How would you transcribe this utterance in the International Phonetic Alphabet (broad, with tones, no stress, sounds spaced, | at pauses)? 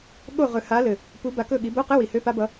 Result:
ɠ o˦˨ ʁ ɵ˨˩ h a˨˦ l ɘ˨˩ | p u˨˦ b a˨˦ k ɵ˦˨ ɠ i˨˦ b o˧˥˧ q ɘ˧˥˧ w i˨˩ h ø˧˥˧ p a˦˥ b ʌ˦˥